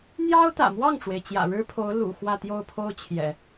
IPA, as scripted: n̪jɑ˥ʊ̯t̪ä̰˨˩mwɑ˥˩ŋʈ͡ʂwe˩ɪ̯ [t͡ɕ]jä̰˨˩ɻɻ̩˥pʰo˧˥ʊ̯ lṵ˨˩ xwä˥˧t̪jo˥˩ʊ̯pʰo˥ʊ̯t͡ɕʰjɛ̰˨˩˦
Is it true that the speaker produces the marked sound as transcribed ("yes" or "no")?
yes